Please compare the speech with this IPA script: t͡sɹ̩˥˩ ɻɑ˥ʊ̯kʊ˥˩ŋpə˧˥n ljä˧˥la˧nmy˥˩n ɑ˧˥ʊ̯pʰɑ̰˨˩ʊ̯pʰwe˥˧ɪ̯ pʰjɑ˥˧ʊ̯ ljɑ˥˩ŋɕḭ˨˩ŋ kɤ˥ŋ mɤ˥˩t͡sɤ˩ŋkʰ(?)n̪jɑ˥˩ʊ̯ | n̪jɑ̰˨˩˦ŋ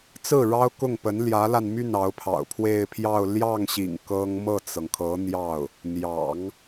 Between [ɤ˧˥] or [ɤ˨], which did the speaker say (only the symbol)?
ɤ˧˥